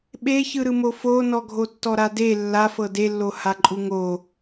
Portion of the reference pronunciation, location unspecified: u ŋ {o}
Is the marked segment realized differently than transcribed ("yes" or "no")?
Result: no